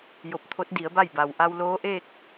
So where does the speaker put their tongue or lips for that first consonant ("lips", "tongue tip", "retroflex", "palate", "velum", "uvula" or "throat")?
palate